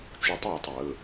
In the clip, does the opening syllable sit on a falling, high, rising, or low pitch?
rising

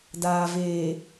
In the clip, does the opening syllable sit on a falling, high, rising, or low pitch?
low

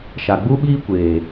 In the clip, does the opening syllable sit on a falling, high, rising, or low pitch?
low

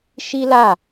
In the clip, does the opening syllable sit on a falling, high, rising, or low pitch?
high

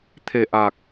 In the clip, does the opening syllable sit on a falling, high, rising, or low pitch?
low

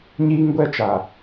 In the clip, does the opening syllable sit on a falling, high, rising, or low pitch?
high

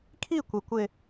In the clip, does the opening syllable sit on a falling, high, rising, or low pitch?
falling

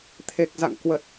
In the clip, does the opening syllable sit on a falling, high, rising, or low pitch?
low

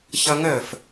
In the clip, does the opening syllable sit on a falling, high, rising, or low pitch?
high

